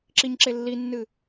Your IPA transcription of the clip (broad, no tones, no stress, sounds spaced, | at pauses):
ǁ i ɲ ǁ e lː i nː ɨ